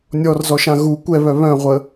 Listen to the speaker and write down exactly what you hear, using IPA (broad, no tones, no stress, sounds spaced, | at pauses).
nʲ ɔ r z ɔ ʃ ã ɣ u kʷ ɛ β œ β œ̃ ʁʷ ə